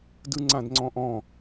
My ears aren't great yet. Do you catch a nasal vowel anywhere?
yes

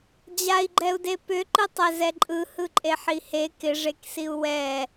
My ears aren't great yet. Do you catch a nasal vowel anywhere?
no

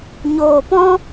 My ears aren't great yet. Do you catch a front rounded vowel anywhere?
no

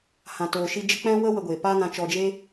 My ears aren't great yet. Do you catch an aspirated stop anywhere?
no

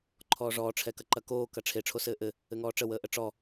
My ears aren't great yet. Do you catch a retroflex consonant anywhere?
yes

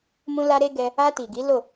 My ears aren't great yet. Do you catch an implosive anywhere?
no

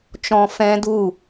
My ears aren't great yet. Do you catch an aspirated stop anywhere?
no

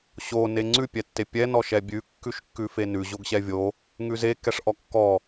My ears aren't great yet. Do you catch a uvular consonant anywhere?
no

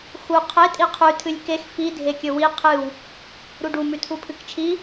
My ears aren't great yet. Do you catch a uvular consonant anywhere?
yes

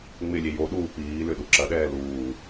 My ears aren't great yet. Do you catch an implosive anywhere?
yes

